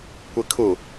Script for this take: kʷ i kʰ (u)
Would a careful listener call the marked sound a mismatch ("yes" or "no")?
no